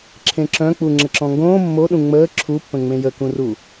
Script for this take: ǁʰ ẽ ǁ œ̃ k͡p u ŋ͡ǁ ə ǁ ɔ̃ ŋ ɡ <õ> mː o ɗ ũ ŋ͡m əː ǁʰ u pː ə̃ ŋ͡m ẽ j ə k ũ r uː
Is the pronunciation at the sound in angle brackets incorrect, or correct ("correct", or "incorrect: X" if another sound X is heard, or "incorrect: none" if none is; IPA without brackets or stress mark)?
incorrect: õː